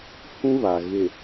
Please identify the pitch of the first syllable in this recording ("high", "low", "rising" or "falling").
high